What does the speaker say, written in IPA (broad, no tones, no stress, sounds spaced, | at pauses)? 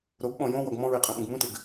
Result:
ɾ o ɡ ɓ ɔ̃ j õ w ɔ ɡ m ɔ̃ ɹ e qʼ ɛ̃ ɓ ũ ɡ m ũ t ɪ ɡ